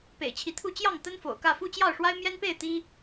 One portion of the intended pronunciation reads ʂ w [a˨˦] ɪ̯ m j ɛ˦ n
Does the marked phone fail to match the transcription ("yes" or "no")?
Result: yes